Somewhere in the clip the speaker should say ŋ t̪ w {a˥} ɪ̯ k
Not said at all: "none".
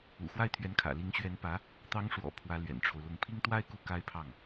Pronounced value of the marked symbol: a˥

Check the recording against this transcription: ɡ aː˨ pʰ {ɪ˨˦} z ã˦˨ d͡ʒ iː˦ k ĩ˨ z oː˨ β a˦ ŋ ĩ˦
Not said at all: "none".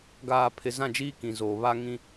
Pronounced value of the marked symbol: ɪ˨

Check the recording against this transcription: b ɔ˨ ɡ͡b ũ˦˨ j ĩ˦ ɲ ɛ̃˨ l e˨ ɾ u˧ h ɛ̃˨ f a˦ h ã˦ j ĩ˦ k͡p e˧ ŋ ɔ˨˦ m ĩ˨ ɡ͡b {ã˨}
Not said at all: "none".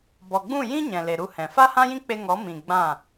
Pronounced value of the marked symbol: ã˦˨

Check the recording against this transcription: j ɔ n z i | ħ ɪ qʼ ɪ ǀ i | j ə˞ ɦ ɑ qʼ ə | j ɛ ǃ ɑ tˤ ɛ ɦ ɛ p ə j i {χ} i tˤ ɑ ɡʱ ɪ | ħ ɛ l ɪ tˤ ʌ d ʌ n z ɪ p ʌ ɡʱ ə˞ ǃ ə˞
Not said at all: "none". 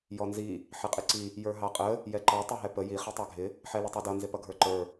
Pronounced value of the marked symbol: χ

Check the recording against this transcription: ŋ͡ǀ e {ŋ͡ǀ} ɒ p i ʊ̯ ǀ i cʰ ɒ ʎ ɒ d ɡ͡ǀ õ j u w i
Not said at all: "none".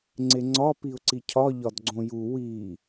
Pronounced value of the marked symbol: ŋ͡ǀ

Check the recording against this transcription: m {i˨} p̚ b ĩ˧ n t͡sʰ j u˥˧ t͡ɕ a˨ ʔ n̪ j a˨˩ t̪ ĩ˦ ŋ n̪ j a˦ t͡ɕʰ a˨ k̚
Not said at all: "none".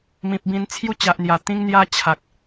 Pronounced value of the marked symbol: ĩ˨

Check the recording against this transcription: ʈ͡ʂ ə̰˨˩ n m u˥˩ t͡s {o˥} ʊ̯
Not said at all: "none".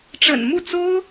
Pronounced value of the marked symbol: o˥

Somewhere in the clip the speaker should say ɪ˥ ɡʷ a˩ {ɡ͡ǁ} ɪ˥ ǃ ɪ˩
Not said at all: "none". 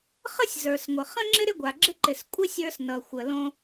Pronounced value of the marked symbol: ɡ͡ǁ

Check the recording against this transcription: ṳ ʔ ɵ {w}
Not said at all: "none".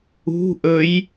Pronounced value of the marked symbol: j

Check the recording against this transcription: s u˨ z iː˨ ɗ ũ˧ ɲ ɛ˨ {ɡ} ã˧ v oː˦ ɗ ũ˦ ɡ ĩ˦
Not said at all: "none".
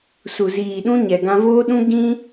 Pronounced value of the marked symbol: ɡ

